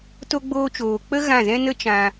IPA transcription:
t o˦ ɡ͡b oː˦ t͡ʃ oː˧ k͡p ə˦ ɣ ã˦˨ z ɛ̃˦ n ə˦ t͡ʃ ã˧

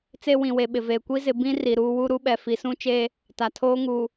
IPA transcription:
t͡s e˦ w ĩ˨ w e˨ ɓ ɪ˨ v eː˨ kʷ i˦ z ɪ˨˦ b ĩ˦ r i˨ ɾ uː˦ w u˦ ɾ u˦ ɓ ɛ˨ f i˨˦ s ũ˦ t͡ʃ eː˦ | t a˨ tʰ oː˦ ŋ uː˨

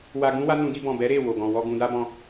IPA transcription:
w a˧ ɡ ũ˦ w a˦ n ũ˧ d i˧ b ɔ̃˨ b ɛ˨˦ ɾ e˦˨ w o˨ ɡ ɔ̃˨ w ɔ˧ ɡ ũ˧ d a˦ b ɔ̃˧

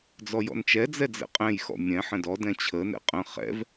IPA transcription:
d͡z ɔ j ɔ̰ n t͡ʃ ɛ d͡z ɛ d͡z ɛ̰ qʼ ɛ̃ j x ɔ̰ mʲ ɛ̃ ħ ə̃ d ɔ d ɛ̃ t͡ɕʰ ə n ɛ̰ qʼ ə̃ χ ɛ̰ v

